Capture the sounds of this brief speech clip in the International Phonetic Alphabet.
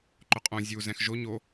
ǃʊqʼõ zʲu zɛ̃xʒo ɲo

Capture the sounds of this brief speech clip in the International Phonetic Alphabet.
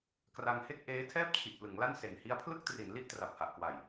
kra˧ŋhe˥˩k̚ ʔeː˦˥ tʰɛː˥˩p̚t͡ɕʰi˨˩ʔ plɯ˩˦ŋla˥˩n se˨˩n hi˦˥a̯pʰlɯ˥˩k̚tri˩˦n li˥˩ʔtra˨˩p̚ha˨˩ʔkwa˨˩j

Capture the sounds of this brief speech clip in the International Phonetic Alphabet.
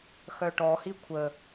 xœʈɔhi kʷʰə

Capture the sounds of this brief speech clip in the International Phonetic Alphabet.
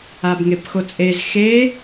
abŋepxot͡sʼez xe

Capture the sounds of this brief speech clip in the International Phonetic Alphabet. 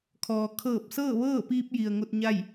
kʰɔː˩ kʰɤː˧˩p̚sɤː˥˨ʋɤː˥˨piː˧p̚ ji˩ə̯ŋo˧t̚ɲa˥˨j

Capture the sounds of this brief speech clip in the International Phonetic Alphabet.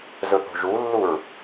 zɵθo̤ʒulːuɹ

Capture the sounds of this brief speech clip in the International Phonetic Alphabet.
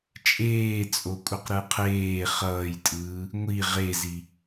t͡ʃʼeːt͡sʼokʷʼʌq ɾɯqʰeː χʌːjtʼɯː | ŋʷi ʁezi

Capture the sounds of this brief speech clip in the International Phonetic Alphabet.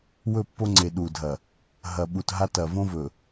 wɵ˦˨pːo˦ŋ͡ǀe˨ ɗu˨dʱɐ˨ | ɦɐ˨ɓu˨tɦa˦ tɐ˨võ˦vɵ˨

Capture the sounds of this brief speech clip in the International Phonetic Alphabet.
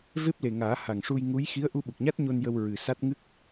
ve˦˥p̚le˨˩ŋaː˨˩˦ ha˨˩ŋʂu˧j ŋu˧˥j xi˧˥ə̯ʔu˧ɓu˨˩k̚ɲa˦˥t̚ ɲo˧njə˧w ɹɨ˨˩sa˦˥t̚ ŋɨ˦˥k̚

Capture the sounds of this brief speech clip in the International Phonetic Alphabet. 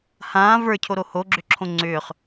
hãː və˞cʰoɾo hoɡ͡ǁʏǁʰõ ŋ͡ǀʏːχ

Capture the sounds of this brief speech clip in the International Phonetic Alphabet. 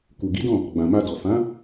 ku˨ ɡi˨˦dɔ̃˦˨ | ɡ͡bã˨ma˧dɔ˨ fã˨˦

